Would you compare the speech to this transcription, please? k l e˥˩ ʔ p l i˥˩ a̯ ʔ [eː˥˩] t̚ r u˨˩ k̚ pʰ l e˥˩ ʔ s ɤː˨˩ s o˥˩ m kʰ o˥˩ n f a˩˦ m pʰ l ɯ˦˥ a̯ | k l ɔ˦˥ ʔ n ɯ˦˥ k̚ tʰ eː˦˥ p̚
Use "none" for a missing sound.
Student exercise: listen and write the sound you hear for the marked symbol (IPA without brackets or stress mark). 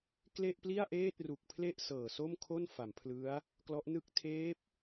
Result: eː˥˩